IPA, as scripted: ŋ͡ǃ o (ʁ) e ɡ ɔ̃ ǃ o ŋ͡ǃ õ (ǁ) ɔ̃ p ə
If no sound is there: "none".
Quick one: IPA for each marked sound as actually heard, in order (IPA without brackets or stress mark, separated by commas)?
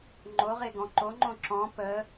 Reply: ʁ, ǁ